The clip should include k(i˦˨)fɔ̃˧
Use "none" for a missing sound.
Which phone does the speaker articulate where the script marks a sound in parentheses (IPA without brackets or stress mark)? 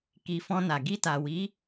i˨